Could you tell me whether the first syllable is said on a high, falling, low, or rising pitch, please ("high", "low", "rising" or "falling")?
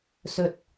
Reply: low